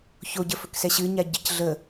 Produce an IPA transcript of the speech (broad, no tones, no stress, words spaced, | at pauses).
çoɟəfɵksɛ ɕɨɲa ɟəc ɮə